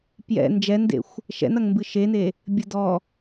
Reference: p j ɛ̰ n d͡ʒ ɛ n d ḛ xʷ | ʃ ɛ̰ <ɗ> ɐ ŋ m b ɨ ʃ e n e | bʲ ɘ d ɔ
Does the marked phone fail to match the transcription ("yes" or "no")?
yes